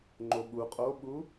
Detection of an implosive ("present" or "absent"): present